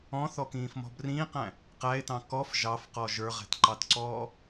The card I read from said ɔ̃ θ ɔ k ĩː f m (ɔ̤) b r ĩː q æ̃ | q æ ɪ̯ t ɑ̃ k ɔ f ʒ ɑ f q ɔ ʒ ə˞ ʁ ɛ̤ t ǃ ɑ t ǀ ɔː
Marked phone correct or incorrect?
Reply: correct